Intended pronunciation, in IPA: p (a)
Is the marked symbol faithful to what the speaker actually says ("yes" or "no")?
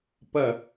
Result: no